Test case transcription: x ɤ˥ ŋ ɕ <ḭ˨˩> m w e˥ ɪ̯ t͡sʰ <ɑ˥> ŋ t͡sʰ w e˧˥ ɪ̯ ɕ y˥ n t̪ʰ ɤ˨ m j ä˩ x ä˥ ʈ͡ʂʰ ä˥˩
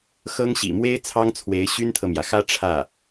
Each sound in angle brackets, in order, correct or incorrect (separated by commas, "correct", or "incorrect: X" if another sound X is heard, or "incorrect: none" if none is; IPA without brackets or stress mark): correct, correct